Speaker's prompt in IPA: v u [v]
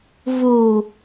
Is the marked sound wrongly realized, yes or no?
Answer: yes